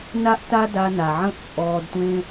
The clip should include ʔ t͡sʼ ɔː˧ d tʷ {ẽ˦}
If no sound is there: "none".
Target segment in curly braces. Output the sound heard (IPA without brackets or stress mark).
ẽ˦